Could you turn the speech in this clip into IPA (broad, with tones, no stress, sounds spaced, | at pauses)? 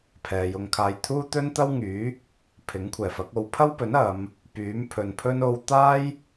pʰ ɛː˨ j ʊ˧ ŋ kʰ aː˧ j t̪ʰ uː˥ t̪ ɵ˥ n t̪ ɐ˥ w ŋ yː˨˥ | pʰ ɪ˨˥ ŋ kʷʰ ɛː˨˩ f ɐ˨˥ k̚ o˨˧ w pʰ ɐ˥ w p ɵ˨˥ n ɐ˨˧ m | p yː˨˥ m pʰ ɵ˨ n pʰ ɵ˥ n o˧ w t̪ aː˥ j